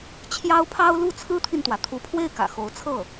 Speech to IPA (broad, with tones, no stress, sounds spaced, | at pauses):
t͡ɕʰ j ɑ˥ ʊ̯ pʰ ɑ˥ ʊ̯ l u˥˩ t͡sʰ ɹ̩˥ t̪ʰ i˨ n t̪ w ä˩ t̪ʰ u˧˥ pʰ w e˥˩ ɪ̯ k ä̰˨˩ x o˧˥ ʊ̯ t͡sʰ ɤ˥˩